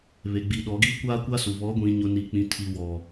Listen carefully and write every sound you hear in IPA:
βe˨ɡ͡bi˨ɗɔ˨˦ ɡiː˦kʷaː˦kʷa˦su˨ βɔ˨˦ɡʷĩ˨ɲʊ˨ ni˨k͡pĩ˨tʰi˨ wɔ˨

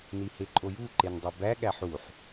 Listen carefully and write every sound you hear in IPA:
niheǃʼoju ǃendˤobæ ɠæħuħ

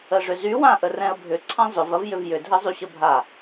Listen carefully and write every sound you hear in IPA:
əʐʏzy wãʔərɛ̃ə̯bʱʏ ǀʰãzˤʏv ɐvjʏvjʏ dʱɘzˤyɕəbʱa

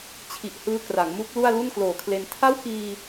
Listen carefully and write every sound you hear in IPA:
t͡ɕʰi˨˩ʔhɯː˦˥ kra˩˦ŋmu˦˥k̚lu˥˩a̯ lu˥˩nkloː˨˩kʰle˧n tʰa˥˩wkiː˧

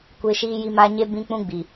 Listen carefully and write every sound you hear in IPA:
kʷe˦ ʃiː˦ji˦ ma˦ ɲe˦ bĩ˦k͡pũ˦ɡ͡bi˨

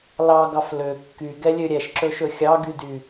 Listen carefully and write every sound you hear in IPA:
lɑɡɑf lø kːyɡɛlʲø ɾʲɛʃǁɵʃɵ xʲɑɡydy

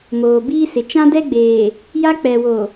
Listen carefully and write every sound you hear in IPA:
moː˨biː˦sɪ˨ t͡ʃã˦dɛ˦ɡ͡beː˨ | ja˦ k͡pɛ˨wo˨

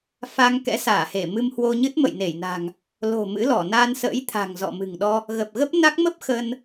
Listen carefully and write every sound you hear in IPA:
fa˧ŋ kɛ̰˧˥saː˧˩he˧˩ mɨ˧mhwo˧ɲɨ˦˥t̚ mə̰˧˨jne˧˩jna̤˨˩ŋ | lo̤˨˩ mɨ̰˧˥lɔ˧˩ na˧nsə̰ː˧˥j t̪ʰa̤˨˩ŋzɔ̰˧˨ mɨ̤˨˩ŋɗɔ˧ | ɣə˨˩p̚ɣə˦˥p̚na˦˥k̚ mə˦˥p̚ xə˧n

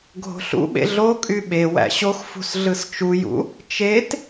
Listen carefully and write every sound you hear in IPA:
ɡʱo̤ɬṵɓḛ ɮokʼy ɓe wæ̰ɕoxfṳs ɮɯst͡ʃujṵ | t͡ʃet

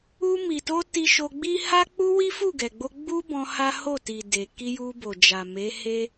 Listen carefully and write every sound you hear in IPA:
u˧mi˨to˧ ti˧ʃo˧ɡ͡bi˦ ha˦k͡pu˦ wi˦fu˦˨ɡɛ˨ɡ͡bo˧ ɡ͡bu˦bɔ̃˧ ha˦ ho˦˨ ti˨ de˨ ki˧ju˧bo˨d͡ʒa˨ me˨˦he˦

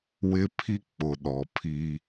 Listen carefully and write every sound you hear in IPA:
wɪ˦ pʰi˦ k͡pʊ˨ɗɔ˨pʰi˦

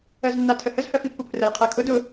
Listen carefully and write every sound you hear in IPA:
ɜznːatʰəhəz hɜfipːupʰrəj qʰɜkʰʊ dʊ

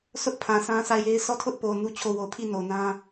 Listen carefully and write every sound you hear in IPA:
sʰʊ˦ʔ pʰã˨sʰã˦sʰa˦˨ɪ̯je˦ɪ̯ sɔ˦˨tʰʊ˦ʔpo˨ nu˦t͡ɕʰo˦˨ wo˨pʰi˦˨ no˨nã˦

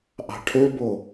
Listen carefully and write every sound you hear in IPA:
ʔɑ̤ʈʰøbo

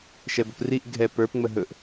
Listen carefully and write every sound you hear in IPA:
ʃɛbəpriʔ ɡʱɛ pə˞p ŋ͡məɦɵʔ

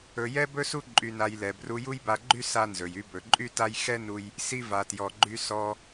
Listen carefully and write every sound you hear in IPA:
ɵ˧ jɛ˥bɵ˥su˥ ǃʼy˧na˧jlɛ˩ bru˧ju˥jba˧ɡ͡ǃy˥ sa˥nzɵ˩j y˧bɵ˩ǃʼy˥ta˥j xɛ˥nu˧j | si˧va˩tjɔ˩ɡ͡ǃy˧ sɔ˧

